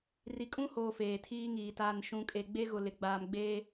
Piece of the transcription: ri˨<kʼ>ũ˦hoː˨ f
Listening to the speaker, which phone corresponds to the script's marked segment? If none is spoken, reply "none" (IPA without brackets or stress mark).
kʼ